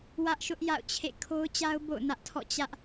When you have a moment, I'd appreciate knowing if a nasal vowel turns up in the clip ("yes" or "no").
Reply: no